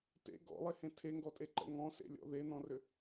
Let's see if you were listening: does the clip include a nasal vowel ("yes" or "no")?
yes